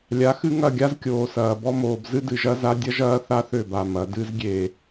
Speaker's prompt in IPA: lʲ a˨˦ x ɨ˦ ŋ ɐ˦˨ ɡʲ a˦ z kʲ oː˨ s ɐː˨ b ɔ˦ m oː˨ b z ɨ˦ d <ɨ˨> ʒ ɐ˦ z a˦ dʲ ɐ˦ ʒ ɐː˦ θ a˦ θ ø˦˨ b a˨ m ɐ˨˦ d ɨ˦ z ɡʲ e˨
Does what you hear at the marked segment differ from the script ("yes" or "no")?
no